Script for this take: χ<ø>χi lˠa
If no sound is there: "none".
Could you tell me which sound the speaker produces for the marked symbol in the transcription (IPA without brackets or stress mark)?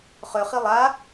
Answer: ø